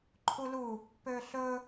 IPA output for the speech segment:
ǃʰulu | pøɬɵ

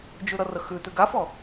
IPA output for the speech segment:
d͡ʒʉɾʌrəxʉ tʉɡafɔ

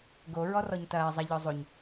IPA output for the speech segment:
ɡo ɹɔrɔɲtɐː zˤɐ ʎɔzˤoɲ

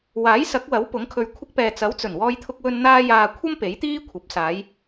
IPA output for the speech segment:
waː˨˥jsɐ˨˥k̚wɐ˨˥w pʊ˨˥ŋkʰɵ˧ɥ kʷʰɪ˧k̚pɛː˨ t͡sɐ˨˥wt͡sɵ˨˩n wɔː˧jt̪ʰʊ˧k̚wɵ˧n n̪aː˧jaː˨ kʷʰɐ˥m pe˨˥jt̪iː˥ kʷʰɐ˨˥p̚ saː˨˧j

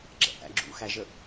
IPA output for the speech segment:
ɡ͡ǁɛ̰ʔæ̰ ɡ͡ǁṵ xæʒə

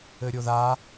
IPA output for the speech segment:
ɘɾʲoða

